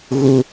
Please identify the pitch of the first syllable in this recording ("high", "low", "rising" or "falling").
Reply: high